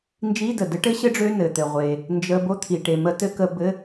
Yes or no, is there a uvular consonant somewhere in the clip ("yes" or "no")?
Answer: yes